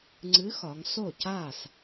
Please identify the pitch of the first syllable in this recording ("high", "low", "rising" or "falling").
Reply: rising